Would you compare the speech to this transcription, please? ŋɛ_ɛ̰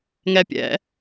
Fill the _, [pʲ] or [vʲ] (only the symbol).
pʲ